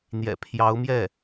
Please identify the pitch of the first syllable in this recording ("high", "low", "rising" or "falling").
low